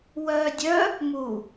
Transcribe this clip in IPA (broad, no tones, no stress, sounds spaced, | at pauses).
w œː dʲ œ | m u